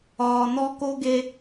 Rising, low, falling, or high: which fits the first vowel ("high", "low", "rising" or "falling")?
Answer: low